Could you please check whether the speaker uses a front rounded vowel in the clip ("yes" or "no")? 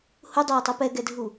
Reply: yes